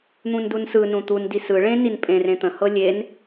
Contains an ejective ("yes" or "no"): yes